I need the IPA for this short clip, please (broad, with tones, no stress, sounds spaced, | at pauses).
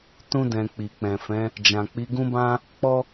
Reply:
t ũ˧ d ɛ̃˨ k͡p i˨ k͡p ɛ̃˨ f ɛ̃˨˦ | d͡ʒ ã˨ k͡p i˨˦ ɡ ũ˦ b ã˦ | k͡p ɔ˦